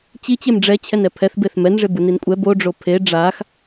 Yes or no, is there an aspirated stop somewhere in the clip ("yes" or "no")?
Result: yes